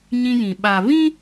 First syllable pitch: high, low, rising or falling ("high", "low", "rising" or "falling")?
high